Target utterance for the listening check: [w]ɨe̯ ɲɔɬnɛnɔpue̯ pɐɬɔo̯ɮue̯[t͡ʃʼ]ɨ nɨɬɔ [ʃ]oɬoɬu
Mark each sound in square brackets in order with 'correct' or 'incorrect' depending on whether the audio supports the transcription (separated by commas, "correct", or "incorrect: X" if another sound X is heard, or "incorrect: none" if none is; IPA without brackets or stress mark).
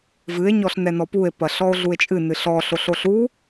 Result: incorrect: v, correct, incorrect: ɬ